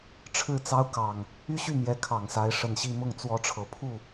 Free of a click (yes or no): yes